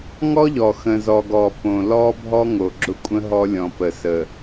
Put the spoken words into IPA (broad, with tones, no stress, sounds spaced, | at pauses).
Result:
ŋ ɔ˦ ʎ ɔ˨ x ə̃˨ z ɔ˨ ɡ ɔ˨ p õ˨ l ɔ˦ bʱ ɔ˦ ŋ o˨ ɡ͡ǁ ʊ˦ kʷʼ ə̃˦ ɦ ɔ˦ lʲ ɔ̃˨ p ə˨ s ə˨